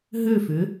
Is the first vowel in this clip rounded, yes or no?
yes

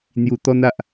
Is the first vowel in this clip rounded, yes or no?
yes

